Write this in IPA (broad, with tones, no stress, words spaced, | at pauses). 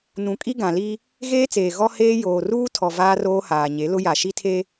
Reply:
nũ˨ kʼi˦ɡã˨li˦ | ɣeː˦t͡seː˨ ɣɔ˦heː˦ joː˨ruː˦tʰɔ˨ vaː˦roː˦haː˨ɲe˨˦ lʊ˦ ja˨ʃi˦tʰe˦